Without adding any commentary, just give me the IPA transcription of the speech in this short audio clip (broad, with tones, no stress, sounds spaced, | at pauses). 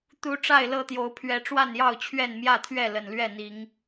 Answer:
t̪ u˨˦ ʈ͡ʂ a˥˨ ɪ̯ l ɤ˥˨ t̪ j o˨˦ ʊ̯ pʰ ɥ ɛ˨˦ ʈ͡ʂ w a˥˨ n j ɑ˥˨ ʊ̯ t͡ɕʰ ɥ ɛ˥˨ n m j ä˥˨ t̪ʰ ɥ ɛ˥˨ l ə˨˩ n l ɥ ɛ˥˨ n̪ i˨˦ ŋ